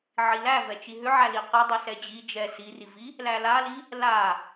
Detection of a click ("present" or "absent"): absent